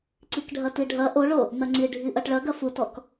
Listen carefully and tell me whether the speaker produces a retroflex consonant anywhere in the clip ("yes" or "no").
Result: yes